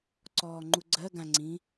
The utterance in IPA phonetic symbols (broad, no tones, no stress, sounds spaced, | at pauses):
ǀ ɔː ŋ͡ǃ u ɡ͡ǀ ɜ ɡ ã ŋ͡ǀ ĩ